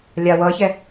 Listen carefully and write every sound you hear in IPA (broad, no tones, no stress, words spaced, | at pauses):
lʲawʌçɛ